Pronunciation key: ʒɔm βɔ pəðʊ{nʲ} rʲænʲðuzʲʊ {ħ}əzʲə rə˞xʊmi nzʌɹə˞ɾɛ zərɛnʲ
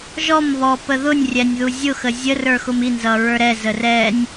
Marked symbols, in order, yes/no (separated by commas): yes, no